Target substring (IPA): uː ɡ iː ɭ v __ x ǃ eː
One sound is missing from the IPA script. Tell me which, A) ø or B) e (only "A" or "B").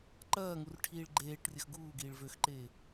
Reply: A